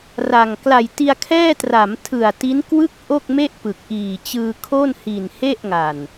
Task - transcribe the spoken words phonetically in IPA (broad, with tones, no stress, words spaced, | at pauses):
ra˨˩ŋ kla˨˩jti˧a̯kʰɛː˥˩ tra˩˦mtʰɯ˨˩a̯ ti˦˥nkwɯ˥˩k̚ ʔo˥˩k̚me˥˩ʔ pɯ˨˩k̚ʔiː˨˩t͡ɕɯː˧ kʰo˥˩nhi˨˩nhe˥˩ʔ ŋa˨˩n